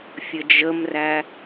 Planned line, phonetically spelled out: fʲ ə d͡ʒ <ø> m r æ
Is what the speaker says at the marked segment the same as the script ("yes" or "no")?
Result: no